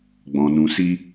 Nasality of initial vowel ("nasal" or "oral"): nasal